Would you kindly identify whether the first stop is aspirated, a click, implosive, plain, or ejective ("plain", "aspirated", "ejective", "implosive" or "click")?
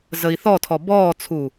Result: aspirated